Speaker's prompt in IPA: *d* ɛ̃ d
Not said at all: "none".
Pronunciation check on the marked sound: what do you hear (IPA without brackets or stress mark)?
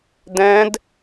d